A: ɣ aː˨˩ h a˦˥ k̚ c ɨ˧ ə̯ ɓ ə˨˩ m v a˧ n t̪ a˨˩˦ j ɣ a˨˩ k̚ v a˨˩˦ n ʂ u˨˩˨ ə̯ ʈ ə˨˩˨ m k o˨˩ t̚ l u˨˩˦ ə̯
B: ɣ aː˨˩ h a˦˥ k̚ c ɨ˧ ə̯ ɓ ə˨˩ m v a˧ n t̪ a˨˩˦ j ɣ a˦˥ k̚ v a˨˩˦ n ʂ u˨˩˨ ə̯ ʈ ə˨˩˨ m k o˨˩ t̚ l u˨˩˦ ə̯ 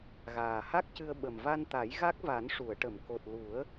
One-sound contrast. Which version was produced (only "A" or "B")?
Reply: B